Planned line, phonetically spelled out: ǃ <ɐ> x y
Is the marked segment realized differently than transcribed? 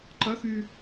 no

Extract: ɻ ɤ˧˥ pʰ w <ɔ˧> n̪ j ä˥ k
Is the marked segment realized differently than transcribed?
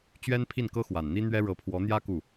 yes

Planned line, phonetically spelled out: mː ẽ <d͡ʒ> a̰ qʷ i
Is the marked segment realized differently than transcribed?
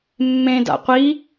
yes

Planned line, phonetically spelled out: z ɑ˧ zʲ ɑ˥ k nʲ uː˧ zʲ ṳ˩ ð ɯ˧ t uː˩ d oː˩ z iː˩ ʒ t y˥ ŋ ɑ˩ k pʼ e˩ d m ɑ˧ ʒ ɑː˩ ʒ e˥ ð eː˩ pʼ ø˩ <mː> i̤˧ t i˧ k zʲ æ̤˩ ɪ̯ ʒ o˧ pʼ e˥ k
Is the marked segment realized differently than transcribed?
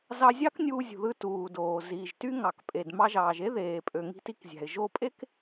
yes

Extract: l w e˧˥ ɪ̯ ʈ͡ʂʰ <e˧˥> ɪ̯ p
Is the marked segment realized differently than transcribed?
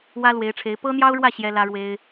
no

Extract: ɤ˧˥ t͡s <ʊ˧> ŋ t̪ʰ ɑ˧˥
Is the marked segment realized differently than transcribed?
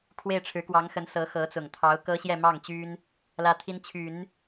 yes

